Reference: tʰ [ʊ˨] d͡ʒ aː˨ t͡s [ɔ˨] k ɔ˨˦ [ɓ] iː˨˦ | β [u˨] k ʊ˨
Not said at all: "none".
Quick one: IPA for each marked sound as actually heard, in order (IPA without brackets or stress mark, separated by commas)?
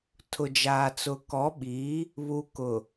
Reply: ʊ˨, ʊ˨, ɓ, u˨